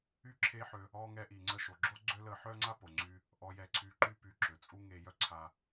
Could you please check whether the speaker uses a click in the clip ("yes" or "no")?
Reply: yes